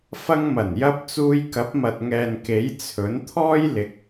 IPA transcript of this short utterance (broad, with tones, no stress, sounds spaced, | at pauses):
f ɐ˧ ŋ m ɐ˨˩ n j ɐ˧ p̚ t͡s uː˧ j k ɐ˨˥ p̚ m ɐ˨ t̚ ŋ ɛː˨ n k e˨˥ j t͡sʰ ɵ˨˥ n t̪ʰ ɔː˥ j l ɪ˨˥ k̚